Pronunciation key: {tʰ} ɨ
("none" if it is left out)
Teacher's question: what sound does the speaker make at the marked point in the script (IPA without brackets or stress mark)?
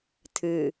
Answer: tʰ